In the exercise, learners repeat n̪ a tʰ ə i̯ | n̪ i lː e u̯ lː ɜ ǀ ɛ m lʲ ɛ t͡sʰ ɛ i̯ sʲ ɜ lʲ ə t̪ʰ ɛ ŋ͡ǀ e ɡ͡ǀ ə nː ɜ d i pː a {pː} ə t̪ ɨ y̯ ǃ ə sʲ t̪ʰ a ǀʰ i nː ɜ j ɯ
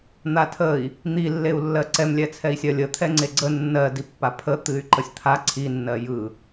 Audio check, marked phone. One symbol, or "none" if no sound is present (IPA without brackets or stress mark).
pʰ